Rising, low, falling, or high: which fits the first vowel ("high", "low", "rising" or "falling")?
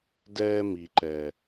high